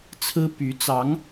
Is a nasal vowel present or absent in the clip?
absent